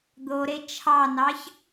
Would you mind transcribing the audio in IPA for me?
d̪ o ɾ e t͡ʃʰ ɑ n ɑ ç

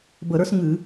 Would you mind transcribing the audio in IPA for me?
b ə˧˩˧ ɾ ə˞˥ s ŋ ɨ˧˩˧

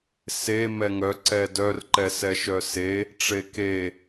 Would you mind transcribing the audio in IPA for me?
s e m ɛ ŋ œ ǀ ɛ d œ r ǃ ɛ s ɛ ʃ œ s e | ʈ͡ʂ e k e

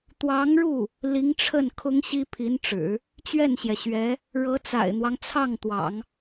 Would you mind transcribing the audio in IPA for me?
t̪ w ɑ˧˥ ŋ ɻ u˥˩ | l i˧˥ ŋ ʈ͡ʂʰ ə˥˩ n kʰ ʊ˥ ŋ ɕ i˥ pʰ i˧˥ n ʈ͡ʂ ɻ̩˨˩˦ | t͡ɕ ɥ ɛ˥˩ n ɕ j ɛ˩ ɕ ɥ ɛ˧˥ | ɻ ɤ˧˥ t͡s a̰˨˩ ɪ̯ n̪ w ɑ˦ ŋ t͡sʰ ɑ˥˩ ŋ t̪ w ɑ̰˨˩˦ ŋ

